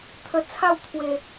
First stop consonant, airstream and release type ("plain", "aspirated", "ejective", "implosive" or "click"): aspirated